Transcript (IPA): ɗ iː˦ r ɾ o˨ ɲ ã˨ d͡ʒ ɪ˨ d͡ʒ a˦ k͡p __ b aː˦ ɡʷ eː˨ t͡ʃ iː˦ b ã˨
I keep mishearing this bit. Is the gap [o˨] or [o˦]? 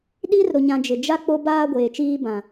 o˦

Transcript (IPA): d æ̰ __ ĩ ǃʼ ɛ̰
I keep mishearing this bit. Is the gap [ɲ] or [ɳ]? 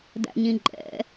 ɲ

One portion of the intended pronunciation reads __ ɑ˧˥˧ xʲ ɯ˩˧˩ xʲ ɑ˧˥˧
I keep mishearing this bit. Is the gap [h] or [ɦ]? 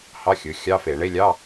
h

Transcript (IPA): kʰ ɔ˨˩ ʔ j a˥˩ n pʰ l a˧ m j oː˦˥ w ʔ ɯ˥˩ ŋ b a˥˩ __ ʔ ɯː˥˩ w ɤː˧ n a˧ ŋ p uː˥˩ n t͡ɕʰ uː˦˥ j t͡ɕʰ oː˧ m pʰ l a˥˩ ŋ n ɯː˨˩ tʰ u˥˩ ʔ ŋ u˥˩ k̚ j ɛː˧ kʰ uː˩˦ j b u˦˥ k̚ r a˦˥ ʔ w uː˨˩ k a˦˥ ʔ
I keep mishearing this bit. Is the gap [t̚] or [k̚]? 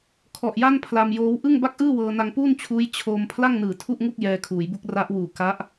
k̚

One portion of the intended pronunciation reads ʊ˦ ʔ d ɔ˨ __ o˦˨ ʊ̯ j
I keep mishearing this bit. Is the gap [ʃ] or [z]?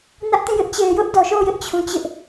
ʃ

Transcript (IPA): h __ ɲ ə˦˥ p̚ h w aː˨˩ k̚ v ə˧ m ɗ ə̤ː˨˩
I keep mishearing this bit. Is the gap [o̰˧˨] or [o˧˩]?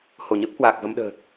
o˧˩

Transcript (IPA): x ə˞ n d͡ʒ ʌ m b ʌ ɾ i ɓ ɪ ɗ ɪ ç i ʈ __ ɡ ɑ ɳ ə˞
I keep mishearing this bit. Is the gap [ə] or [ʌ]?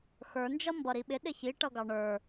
ʌ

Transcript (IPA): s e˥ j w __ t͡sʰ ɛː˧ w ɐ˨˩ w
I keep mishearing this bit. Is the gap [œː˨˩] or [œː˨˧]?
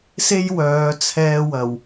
œː˨˧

